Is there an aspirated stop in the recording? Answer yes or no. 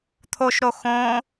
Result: yes